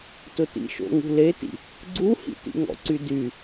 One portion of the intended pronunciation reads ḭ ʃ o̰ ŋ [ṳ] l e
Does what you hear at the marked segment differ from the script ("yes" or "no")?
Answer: no